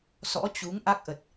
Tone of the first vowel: rising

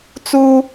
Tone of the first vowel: high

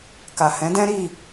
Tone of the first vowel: low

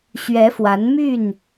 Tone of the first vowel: rising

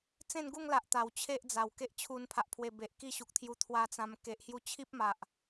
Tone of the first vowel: falling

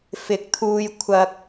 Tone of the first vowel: rising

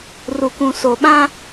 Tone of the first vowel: low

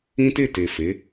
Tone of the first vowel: high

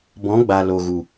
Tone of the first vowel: rising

